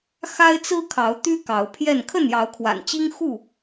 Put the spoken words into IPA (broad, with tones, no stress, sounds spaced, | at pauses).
x a˦ ɪ̯ t͡s ɹ̩˦ kʰ ɑ˨˦ ʊ̯ t̪ y˦ k ɑ˨˦ ʊ̯ pʰ j ɛ˥˨ n kʰ ə˥˨ n j ɑ˨˦ ʊ̯ kʰ w a̰˨˩ n t͡ɕ i˦ ŋ x u˥˨